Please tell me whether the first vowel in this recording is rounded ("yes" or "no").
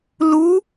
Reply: yes